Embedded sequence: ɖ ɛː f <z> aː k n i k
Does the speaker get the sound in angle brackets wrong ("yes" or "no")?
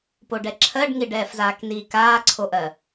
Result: no